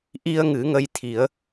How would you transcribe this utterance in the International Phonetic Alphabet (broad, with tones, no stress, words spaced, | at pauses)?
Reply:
ʔi˧ə̯ ŋɨ˨˩˦ŋə˧jt̪ʰi˨˩˦ə̯